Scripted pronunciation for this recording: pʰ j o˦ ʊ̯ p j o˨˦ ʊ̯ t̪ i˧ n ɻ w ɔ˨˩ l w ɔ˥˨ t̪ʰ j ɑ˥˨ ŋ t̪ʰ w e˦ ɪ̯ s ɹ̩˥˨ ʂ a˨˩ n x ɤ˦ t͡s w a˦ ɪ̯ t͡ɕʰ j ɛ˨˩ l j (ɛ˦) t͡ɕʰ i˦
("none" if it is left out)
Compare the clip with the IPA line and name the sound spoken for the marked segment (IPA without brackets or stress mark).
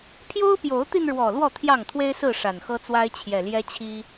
ɛ˦